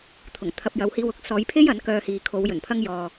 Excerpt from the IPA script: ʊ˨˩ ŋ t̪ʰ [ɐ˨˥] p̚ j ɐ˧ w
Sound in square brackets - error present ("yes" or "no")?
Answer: yes